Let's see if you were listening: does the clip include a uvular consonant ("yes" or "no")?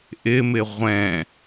yes